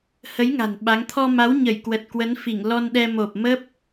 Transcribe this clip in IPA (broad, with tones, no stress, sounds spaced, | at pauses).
h ə˨˦ j ŋ a̤˨˩ n ɓ a˨˦ ŋ t̪ʰ ɔ˧ m a˨˦ w ɲ ə˧˩ j k w ə˨˩ t̚ k w ə˨˦ n f i˧˩ ŋ l ɔ˧ n ɗ ɛ˧ m o˨˩ p̚ m ə˦˥ p̚